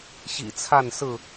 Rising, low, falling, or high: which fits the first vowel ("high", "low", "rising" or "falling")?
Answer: low